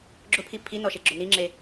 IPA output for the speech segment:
ɡ͡ǁʊpʰi pʰinɔʃeɡ͡ǁʊ niŋ͡ǁe

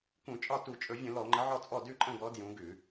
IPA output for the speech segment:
kũ˧˩˧t͡ʃʼɒ˥˩ tu˧˩˧t͡ʃʼɵ˧˩˧vʲə̃˧˩˧ lɔ˧˩˧ŋ͡ǃə˨˦ʕɔ˥˩t͡sʼɔ˥˩ dʉ˥˩ǃʼə̃˥˩ɡɔ˨˦ djũ˨˦ɡʉ˧˩˧

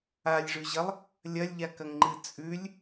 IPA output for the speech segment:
alʲʐʉʑɐlˠ | lʲɐlʲʎakɐŋŋ͡ǃɨ t͡sʼʉlʲ

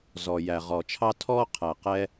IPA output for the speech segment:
zɔ˨jæ˨ʁɔː˨t͡ʃʰɑ˥ tʰɔː˥qʰæ˨ qɛ˥

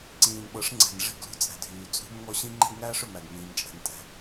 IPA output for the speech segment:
ǀĩː˨nɓɤ˨˦ʂŋ͡ǀɛ̤˨n ʐi̤˦˨ɡlṳ˦ t͡sʼɛ̤˨dʱyː˨ t͡sʼṳ˦mŋɔ˦ ɕĩ˦ŋ͡ǃɛ̤˦ɡŋæː˦ʂ ø˨mæ˨ɡmĩː˨mt͡ʃʼɛ̤˨n tʼɛ̤˨

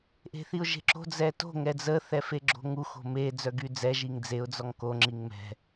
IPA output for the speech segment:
ʔe̤θiʊ̯ʒe̤ǁo̤ d͡zɛto̤ ŋɛd͡zə θɛfeɡ͡ǁo̤ŋu xo̤me d͡zœɡyd͡zɛ ʒiŋd͡zeʊ̯ d͡zɔŋko ŋ͡ǁiŋmɛ̤

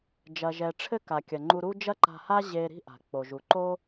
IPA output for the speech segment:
d͡ʒɐ˩ʒɛ˩ʈ͡ʂʰɘ˥ ka˩kʲɐ˩ ŋ͡ǃu˧ɾu˥ d͡ʒɐ˥ǃa̤˧ha˥ ʑe˧ ɾi̤˥ʔa̤˩ k͡po˩ʒu˩ǃo˥

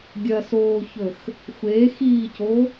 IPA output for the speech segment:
ɡʲɐsoːçɵx | xʷexiːco

